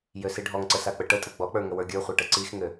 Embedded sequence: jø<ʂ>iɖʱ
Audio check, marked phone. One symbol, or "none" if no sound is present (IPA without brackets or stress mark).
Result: s